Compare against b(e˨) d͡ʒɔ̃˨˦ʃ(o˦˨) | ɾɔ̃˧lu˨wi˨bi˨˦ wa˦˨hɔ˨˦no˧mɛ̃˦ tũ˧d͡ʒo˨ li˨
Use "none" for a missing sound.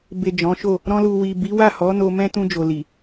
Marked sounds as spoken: e˨, o˦˨

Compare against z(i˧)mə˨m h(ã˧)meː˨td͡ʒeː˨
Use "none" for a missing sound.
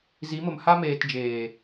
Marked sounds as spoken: i˨˦, a˧

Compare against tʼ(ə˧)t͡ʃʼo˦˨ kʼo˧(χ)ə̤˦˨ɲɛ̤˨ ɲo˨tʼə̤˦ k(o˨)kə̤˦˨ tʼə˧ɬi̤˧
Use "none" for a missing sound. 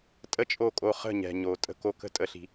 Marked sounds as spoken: ə˦, χ, o˧

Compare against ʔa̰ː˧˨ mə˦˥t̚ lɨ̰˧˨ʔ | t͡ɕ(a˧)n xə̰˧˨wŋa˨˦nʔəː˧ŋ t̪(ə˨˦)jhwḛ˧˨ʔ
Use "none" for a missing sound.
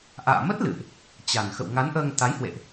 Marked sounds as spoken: a˨˩, a˨˦

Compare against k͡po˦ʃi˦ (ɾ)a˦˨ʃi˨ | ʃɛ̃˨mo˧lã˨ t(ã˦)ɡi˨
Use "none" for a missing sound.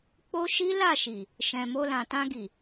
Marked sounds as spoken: l, ã˧

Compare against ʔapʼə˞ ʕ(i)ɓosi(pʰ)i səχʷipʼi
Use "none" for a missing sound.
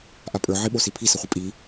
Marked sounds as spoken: i, pʰ

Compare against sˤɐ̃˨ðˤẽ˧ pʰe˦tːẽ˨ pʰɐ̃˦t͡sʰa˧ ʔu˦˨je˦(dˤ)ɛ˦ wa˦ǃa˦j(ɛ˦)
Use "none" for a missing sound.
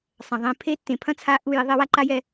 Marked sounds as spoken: ðˤ, ɛ˧

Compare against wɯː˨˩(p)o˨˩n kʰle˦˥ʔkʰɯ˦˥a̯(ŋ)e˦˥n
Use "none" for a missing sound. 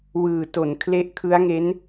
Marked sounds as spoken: t, ŋ

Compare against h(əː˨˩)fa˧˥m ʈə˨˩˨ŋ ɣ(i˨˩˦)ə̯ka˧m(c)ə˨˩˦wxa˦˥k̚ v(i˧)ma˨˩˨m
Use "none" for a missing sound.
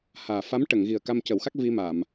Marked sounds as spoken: aː˨˩, i˨˩, c, i˧

